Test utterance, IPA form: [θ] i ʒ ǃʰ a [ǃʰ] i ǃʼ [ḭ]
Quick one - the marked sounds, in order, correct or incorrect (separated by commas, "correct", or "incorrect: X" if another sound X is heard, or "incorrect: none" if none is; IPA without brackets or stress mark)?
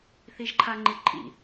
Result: correct, incorrect: ŋ͡ǃ, correct